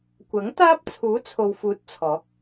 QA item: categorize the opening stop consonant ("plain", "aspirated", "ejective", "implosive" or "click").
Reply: plain